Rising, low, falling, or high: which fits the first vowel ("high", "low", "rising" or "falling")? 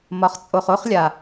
low